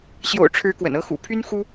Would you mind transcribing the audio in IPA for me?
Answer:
ɕjo̰˨˩ʊ̯ʈ͡ʂʰɻ̩˨˦ kwə̰˨˩nɤ˦xṵ˨˩ pʰy˦nxu˦

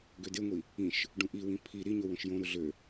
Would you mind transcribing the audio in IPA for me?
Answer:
ɡødeŋʷi | ĩʃ | ɖũʔiwĩ pʰi ɾiɲo wõʃjõɾu ɮø

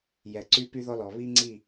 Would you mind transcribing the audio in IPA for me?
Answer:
jɛ˨ǀy˦ py˦ðɔ˦lɔ˨ βi˦ŋ͡ǀi˦˨

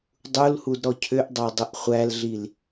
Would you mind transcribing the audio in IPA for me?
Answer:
dˤulhud ɾɔcʰʏʔdˤɑ dˤəʔχʷælɮil

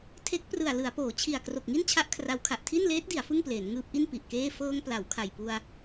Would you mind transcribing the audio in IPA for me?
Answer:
tʰe˦˥k̚prɯ˨˩a̯ lɯ˩˦a̯poː˩˦t͡ɕʰi˨˩a̯ kro˨˩k̚ŋi˥˩nt͡ɕʰa˦˥ʔ kʰra˦˥wkʰa˨˩ʔ tʰi˥˩nleː˦˥t̚di˩˦a̯ fɯ˥˩ŋpleː˩˦n ŋɯː˦˥p̚ʔi˥˩n pi˨˩ʔkeː˥˩ fɤː˧ŋ pla˩˦wkʰa˨˩jpu˧a̯

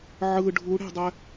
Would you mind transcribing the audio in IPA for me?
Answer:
ʕɯ ɖʱuɽe̤dˤɛ

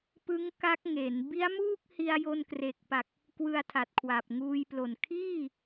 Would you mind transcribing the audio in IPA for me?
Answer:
pɯ˦˥ŋ ka˦˥k̚ŋe˩˦n bi˦˥a̯muː˥˩k̚hi˧a̯ jo˧nkre˨˩k̚pa˨˩k̚ | kwɯ˧a̯tʰa˨˩t̚kʰwa˨˩p̚ ŋuː˧jplo˨˩n kʰiː˥˩

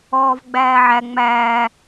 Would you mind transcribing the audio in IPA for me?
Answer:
ɔːvɡ͡bæːʕæ ŋ͡mæː

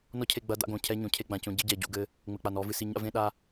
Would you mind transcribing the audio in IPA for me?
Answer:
nɔ˦cʰe˦˨ ɡ͡bɐ˦ da̰˦ɡõ˨cʰɛ˦ɲõ˨ cʰe˦ɡ͡bã˨cõ˦ ɟɨ˦ ɟɛ˨ɟṵ˦˨ɡɘ˦ | ŋ͡mɘ˨k͡pa˨n ɔ˨˦vɨ˨si˦˨ ɲa̰˦vẽ˦ɗa˦

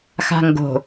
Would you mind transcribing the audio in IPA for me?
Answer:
xa̤ŋɡo̤

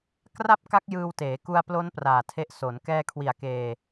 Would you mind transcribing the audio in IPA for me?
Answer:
kra˥˩p̚ ka˦˥k̚ jɯː˧wteː˩˦ ku˧a̯plo˦˥n praː˨˩tʰe˦˥ʔ so˩˦n kɛː˧kʰwi˨˩a̯ keː˧

